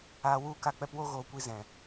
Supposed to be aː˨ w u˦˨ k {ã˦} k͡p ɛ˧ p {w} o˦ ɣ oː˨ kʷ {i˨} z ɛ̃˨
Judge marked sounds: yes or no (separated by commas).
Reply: no, yes, no